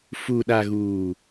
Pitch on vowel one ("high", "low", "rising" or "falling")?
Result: low